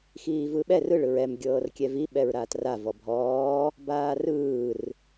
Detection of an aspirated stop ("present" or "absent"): absent